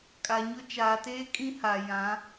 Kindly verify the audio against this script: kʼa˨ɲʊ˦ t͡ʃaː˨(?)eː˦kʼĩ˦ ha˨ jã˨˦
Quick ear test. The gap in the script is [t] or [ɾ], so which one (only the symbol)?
t